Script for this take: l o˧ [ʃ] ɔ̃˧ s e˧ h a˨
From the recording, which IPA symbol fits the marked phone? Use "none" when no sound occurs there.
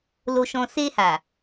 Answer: ʃ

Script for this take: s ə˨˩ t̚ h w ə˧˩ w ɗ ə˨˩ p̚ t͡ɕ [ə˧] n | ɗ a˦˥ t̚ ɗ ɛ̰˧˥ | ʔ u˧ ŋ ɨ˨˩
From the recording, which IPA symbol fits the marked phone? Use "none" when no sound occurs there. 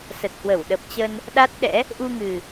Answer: ə˧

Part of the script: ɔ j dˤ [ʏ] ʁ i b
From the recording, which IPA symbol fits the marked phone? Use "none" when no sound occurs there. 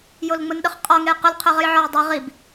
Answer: ʏ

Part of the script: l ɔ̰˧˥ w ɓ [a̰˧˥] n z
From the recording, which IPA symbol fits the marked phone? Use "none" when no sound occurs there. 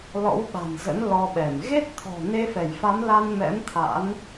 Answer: a̤˨˩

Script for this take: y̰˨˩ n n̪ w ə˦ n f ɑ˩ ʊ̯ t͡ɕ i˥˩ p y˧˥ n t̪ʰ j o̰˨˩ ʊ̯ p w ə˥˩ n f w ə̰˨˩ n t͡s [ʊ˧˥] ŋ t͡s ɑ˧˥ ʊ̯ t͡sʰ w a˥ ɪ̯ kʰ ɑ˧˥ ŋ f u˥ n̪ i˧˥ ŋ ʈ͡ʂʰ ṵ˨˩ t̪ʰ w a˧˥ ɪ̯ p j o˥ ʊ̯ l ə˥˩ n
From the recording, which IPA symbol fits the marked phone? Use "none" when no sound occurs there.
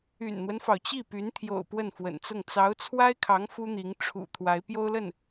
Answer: ʊ˥˩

